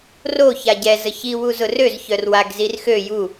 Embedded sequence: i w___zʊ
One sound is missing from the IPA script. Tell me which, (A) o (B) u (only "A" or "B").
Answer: B